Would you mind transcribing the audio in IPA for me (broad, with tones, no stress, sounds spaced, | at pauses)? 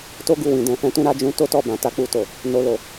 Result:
t o˦ ɡ u˦˨ w ĩ˨ d ɛ̃˨ f ɛ̃˧ t ũ˧ ɾ a˧ d͡ʒ ũ˧ t o˦ t ɔ˦˨ b ã˨ t a˧ k͡p u˧ t o˨ | n o˧ l o˨